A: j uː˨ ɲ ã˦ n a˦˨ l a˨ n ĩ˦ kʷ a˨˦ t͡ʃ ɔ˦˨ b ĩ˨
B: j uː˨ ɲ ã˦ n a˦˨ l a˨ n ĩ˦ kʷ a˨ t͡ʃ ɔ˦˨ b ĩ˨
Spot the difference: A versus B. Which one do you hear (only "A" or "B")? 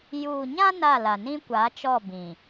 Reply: A